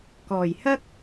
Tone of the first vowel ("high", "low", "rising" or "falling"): low